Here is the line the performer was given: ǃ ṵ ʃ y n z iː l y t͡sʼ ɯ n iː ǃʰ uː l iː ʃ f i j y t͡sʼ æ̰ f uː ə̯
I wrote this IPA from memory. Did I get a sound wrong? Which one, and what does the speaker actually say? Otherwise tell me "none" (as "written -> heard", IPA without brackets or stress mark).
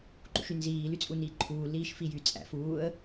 ɯ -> u